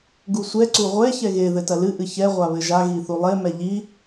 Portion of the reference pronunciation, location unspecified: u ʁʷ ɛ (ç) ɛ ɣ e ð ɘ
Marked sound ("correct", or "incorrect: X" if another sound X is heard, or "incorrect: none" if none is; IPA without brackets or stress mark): correct